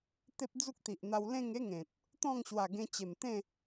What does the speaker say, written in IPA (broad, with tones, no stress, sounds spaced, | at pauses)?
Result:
t̪ e˦ p̚ d͡z u˦ k̚ t̪ i˨ ʔ n̪ a˧ w l ẽ˥˧ ŋ e˦ ŋ ẽ˨ t̚ | t̪ ɔ̃˥˧ ŋ ɕ w a˨˩ ɡ ẽ˧ t͡ɕ e˨˩ m t̪ ẽ˥˧